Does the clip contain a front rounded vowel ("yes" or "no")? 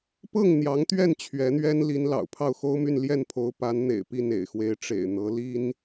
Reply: yes